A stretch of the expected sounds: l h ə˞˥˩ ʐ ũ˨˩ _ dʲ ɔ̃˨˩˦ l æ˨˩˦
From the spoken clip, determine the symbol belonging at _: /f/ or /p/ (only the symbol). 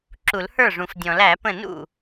f